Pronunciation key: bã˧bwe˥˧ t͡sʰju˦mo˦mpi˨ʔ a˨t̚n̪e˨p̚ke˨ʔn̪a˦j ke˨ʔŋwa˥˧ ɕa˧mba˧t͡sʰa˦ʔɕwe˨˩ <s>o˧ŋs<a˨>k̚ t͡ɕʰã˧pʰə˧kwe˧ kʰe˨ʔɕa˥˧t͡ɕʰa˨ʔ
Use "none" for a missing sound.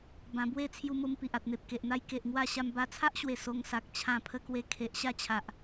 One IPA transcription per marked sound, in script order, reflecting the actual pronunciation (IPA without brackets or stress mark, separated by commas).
s, a˨